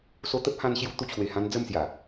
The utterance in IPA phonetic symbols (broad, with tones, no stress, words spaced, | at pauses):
so˧t̪ə˦p̚hã˧nɕju˧ t̪u˧t͡ɕʰwe˨˩hã˧n d͡zə˥˧msja˨˩